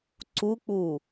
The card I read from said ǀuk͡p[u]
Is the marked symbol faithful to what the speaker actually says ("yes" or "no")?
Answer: yes